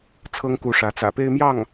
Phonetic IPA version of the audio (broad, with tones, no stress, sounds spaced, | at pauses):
t͡sʰ ɤ˥ ŋ k u˧˥ ʂ ä˧˥ t͡s ä̰˨˩ p e˥˧ ɪ̯ m j ɑ˥˩ ŋ